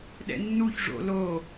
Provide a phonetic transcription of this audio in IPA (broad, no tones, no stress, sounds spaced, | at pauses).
ɗ ɛ̰ nː u ç ʐ o̰ l o